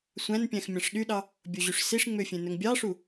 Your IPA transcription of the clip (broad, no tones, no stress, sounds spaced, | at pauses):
sʷ æ̃ n pʲ æ̃ x mʲ ɑ̃ ʂ ɗ y ɗ ɑ | bʲ o ʑ y ʂ s i ʂ ŋ͡m ø fʲ ẽ n ɵ ŋ bʲ ɑ ʂ u